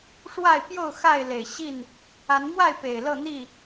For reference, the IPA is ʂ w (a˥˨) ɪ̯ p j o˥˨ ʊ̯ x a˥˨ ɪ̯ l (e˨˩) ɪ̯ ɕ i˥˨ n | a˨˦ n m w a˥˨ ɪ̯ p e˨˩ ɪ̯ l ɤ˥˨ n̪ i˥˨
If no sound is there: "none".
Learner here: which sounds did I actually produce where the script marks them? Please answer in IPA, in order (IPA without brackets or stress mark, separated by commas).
a˥˨, e˨˩